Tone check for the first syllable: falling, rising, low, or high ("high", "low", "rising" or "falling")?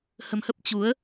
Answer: low